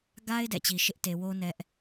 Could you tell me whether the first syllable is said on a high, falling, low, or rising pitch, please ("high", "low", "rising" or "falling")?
high